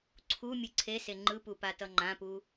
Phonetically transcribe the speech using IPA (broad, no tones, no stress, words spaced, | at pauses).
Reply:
ǀʰu mʲɯǀʰese ŋ͡ǃɯpu patʌŋ͡ǃãpu